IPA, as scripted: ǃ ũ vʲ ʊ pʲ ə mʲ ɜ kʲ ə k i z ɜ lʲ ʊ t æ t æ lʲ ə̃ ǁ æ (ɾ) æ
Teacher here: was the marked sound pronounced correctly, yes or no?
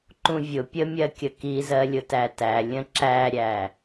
no